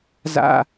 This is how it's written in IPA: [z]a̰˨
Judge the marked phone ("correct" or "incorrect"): correct